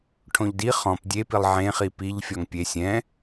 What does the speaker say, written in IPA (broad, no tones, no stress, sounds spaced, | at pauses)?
ʈʰ õ ʎ d i χ ɔ̃ p dʲ e p i lˠ ʕ ẽ χ i p i ʎ fʲ ɔ ŋ pʲ e sʲ ɛ̃